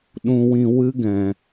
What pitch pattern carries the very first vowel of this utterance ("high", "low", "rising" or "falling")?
low